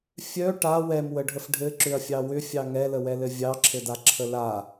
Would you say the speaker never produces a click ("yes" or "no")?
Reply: no